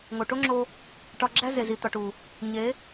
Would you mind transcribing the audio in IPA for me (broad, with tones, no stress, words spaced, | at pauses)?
ŋo˨ʈo˦ŋ͡ǁo˧ | ʈɒ˧ɡ͡ǁæ˦ ze˨zi˨t̪ɒ˨ʈu˨ | ɲe˨˦